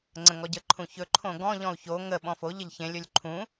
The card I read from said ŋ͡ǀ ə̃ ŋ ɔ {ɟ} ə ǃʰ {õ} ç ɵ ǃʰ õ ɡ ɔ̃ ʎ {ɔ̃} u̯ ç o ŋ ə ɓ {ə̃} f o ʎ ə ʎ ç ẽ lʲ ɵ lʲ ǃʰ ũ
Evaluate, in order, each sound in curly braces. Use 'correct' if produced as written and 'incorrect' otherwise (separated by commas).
correct, incorrect, correct, incorrect